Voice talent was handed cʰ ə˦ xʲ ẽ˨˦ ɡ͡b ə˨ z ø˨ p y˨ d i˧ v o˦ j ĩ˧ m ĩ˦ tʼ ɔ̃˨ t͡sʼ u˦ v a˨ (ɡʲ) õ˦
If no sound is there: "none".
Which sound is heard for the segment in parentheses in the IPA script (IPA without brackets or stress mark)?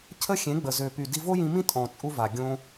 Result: ɡʲ